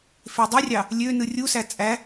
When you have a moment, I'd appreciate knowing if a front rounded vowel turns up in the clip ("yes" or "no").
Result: yes